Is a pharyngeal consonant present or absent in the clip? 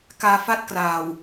absent